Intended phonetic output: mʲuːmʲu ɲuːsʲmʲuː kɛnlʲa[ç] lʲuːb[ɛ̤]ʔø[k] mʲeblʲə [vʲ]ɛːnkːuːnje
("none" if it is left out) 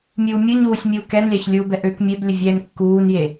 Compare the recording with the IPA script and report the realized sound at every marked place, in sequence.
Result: ç, ɛ, k, vʲ

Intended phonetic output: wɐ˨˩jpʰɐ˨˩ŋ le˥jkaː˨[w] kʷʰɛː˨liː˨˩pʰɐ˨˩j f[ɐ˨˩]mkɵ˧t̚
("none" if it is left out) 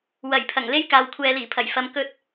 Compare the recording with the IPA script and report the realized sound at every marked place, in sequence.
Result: w, ɐ˨

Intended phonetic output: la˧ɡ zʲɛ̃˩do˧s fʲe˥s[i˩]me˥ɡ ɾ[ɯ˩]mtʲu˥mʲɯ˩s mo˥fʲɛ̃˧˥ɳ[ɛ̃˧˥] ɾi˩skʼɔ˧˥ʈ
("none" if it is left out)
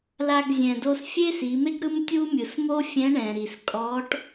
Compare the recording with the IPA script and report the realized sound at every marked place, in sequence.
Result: i˩˧, ɯ˥, ɛ̃˩

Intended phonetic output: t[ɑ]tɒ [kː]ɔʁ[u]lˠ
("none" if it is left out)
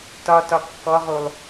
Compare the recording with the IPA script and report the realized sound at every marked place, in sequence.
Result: ɒ, kː, u

